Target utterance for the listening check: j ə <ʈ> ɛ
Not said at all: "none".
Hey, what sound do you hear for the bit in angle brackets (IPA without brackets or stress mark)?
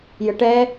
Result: ʈ